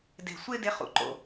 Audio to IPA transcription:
d e̤˨ sʷ e˦ d e˧ χ ṵ˨ ǃ o̰˨

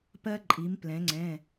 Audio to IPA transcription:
p ɜ˦ ǃʼ i˩˧ m p l ɛ̃˩˧ ŋ͡ǀ ɛ̃˩˧˩

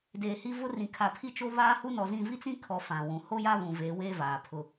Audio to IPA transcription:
d eː˨ h i˦ v ʊ˦ r ĩ˨ kʰ a˨ pʰ i˦ t͡ʃ o˦ β aː˦ h u˦ n ɔ˨ z ĩ˦˨ v i˦ t͡s ĩ˦ kʰ ɔ˨ f ã˨ w ũ˨ h o˦ j a˦ β ũ˨ v eː˨˦ w eː˦ v aː˨ pʰ ʊ˦

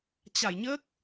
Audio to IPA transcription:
t͡ɕ a˧˩ j ɲ əː˦˥ k̚

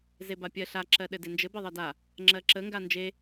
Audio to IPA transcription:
z e b a pʲ ɜ ɬ a ǁ ɜ ɗ ɘ d e n d͡ʒ ɘ b ɘ ðˤ ɜ d a | ŋ͡ǁ ɜ ǁ ə ŋ ɡ a n d͡ʒ e

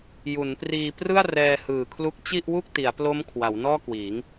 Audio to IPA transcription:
j u˩˦ n p r iː˧ p r ɯ˥˩ a̯ r ɛː˧ h ɯː˨˩ kʰ l u˦˥ k̚ t͡ɕ i˥˩ ʔ w u˥˩ k̚ t i˩˦ a̯ p l o˦˥ m kʰ w a˩˦ w n ɔː˥˩ k w iː˩˦ ŋ

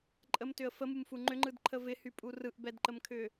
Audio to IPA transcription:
ǃʼ ə m t ʏ ə̯ f ə m u m f u ŋ͡ǃ ʏ ŋ͡ǃ ɯ d ǃʰ ə v ɪ h y pʼ u r ɯ ʔ b ɛ d ǃ ə m kʰ ʏ

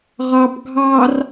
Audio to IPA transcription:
ʁ ɑ b ɡʱ ɑ r

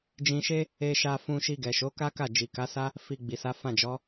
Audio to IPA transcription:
d͡ʒ ĩ˧ ʃ e˦ | e˧ ʃ a˧ f ũ˧ ʃ i˧ ɡ ɛ˨ ʃ o˨˦ k a˦ k a˦˨ d͡ʒ i˨ k a˨˦ s a˦ | f i˧ ɡ͡b i˨ s a˨˦ f ã˦˨ d͡ʒ ɔ˨˦

